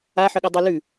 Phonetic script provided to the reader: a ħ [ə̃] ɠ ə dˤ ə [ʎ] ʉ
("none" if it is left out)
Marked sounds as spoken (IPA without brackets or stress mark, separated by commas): ə, l